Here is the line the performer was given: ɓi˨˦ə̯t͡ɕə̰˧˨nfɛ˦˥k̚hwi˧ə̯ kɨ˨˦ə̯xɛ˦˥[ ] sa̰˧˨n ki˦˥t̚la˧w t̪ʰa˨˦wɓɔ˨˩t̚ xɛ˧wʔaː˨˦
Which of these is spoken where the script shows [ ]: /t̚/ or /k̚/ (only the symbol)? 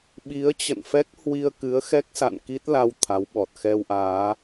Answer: k̚